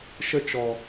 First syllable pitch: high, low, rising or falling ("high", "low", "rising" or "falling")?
high